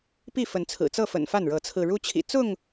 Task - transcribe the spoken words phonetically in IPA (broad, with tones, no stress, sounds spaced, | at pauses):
p i˥˨ f ə˨˦ n t͡sʰ ɹ̩˨˩ t͡s ɤ˥˨ f ə̰˨˩ n f a˥˨ n ɻ ɤ˨˦ t͡sʰ ɹ̩˧ ɻ u˦ t͡ɕʰ ḭ˨˩ t͡s ʊ˥˨ ŋ